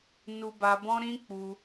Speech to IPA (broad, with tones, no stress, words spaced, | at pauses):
nu˧ba˧bɔ̃˦ ɾĩ˦k͡pu˧